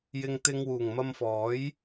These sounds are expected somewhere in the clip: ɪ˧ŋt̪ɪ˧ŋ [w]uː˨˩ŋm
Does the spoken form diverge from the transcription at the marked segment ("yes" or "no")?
no